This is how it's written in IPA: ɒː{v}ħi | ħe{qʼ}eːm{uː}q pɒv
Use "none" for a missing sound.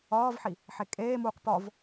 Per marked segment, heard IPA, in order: v, kʼ, uː

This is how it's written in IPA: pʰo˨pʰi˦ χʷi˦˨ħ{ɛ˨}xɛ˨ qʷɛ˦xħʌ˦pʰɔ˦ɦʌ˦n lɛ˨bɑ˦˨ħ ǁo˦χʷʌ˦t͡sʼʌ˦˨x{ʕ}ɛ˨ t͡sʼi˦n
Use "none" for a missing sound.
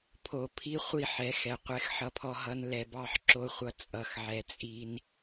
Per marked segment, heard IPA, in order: ɛ˨˦, ʕ

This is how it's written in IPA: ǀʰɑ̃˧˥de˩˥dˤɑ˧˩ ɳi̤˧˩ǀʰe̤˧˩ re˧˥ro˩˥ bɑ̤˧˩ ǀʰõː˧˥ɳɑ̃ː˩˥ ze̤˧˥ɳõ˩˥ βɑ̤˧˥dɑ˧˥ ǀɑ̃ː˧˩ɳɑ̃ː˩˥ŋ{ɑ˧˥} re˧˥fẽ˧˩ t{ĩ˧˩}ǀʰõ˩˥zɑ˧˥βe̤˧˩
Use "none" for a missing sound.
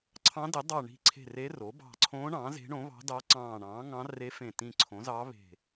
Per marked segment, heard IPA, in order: ɑ̃˧˥, ĩ˧˩

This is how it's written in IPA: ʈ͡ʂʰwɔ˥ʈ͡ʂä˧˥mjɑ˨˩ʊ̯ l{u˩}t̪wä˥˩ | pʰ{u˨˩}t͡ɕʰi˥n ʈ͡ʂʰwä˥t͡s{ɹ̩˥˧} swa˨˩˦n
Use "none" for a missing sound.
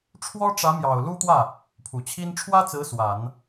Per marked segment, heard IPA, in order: u˥, u˨˩, ɹ̩˧˥

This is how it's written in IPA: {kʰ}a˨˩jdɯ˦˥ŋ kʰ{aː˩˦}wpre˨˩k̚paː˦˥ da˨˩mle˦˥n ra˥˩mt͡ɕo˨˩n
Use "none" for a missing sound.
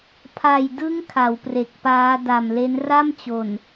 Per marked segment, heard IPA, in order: pʰ, a˩˦

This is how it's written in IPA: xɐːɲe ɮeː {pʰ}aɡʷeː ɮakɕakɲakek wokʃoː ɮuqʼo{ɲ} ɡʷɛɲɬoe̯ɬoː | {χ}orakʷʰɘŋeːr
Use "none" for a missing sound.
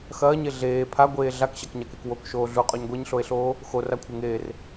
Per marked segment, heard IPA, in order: pʰ, ɲ, x

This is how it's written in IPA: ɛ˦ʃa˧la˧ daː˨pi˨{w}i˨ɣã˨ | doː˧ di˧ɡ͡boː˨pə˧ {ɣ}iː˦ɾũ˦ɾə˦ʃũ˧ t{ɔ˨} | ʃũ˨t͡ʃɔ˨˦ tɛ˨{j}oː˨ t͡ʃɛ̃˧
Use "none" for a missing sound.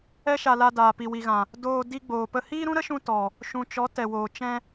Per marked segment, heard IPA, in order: w, h, ɔ˨, w

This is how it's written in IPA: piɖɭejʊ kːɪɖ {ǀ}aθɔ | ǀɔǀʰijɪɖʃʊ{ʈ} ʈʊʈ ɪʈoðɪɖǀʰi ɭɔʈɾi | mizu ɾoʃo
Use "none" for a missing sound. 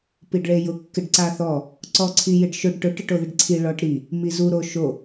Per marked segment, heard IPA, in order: ǀ, ɖ

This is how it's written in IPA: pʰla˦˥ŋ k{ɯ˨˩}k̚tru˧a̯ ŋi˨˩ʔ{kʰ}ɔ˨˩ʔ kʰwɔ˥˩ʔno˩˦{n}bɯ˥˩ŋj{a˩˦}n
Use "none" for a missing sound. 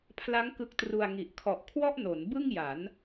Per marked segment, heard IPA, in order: ɯ˦˥, kʰ, n, a˩˦

